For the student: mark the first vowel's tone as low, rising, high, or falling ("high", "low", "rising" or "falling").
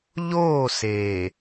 falling